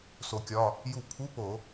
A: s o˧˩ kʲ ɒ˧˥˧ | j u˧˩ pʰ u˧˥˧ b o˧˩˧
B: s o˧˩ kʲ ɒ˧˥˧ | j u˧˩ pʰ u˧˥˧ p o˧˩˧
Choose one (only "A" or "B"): B